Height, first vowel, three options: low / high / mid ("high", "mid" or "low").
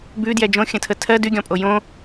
high